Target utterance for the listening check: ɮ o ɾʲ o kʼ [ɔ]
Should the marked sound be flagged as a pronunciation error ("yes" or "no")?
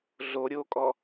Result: no